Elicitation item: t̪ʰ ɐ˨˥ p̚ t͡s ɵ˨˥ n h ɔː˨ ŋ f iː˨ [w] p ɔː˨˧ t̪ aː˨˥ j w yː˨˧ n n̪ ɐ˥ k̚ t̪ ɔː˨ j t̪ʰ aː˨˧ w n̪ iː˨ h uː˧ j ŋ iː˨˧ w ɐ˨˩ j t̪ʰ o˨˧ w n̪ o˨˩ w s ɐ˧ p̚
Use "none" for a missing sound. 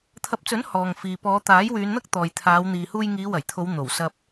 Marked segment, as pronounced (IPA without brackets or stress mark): none